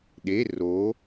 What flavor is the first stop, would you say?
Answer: implosive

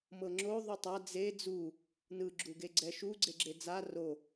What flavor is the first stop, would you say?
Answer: click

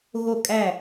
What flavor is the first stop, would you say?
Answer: ejective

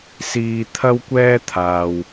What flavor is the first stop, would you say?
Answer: aspirated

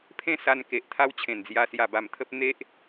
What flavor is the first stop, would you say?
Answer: aspirated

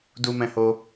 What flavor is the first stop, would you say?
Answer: plain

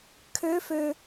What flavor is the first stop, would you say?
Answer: aspirated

